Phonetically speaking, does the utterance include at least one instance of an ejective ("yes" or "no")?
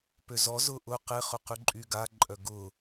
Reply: yes